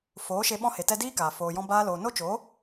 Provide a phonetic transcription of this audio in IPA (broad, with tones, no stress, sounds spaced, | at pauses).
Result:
f oː˨˦ ʃ e˧ ɓ ɔ̃˧ h e˨ t ɛ˧ d iː˦ k aː˨ f oː˧ j ɔ̃˦ b aː˦ l oː˧ n o˦ t͡ʃ o˨˦